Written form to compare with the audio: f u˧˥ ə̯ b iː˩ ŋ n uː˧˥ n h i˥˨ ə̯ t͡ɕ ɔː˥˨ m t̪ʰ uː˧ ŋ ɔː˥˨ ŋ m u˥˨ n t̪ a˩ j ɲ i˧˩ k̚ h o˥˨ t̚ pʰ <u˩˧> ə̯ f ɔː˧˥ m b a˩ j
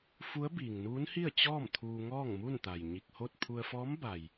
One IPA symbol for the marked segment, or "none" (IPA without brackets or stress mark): u˧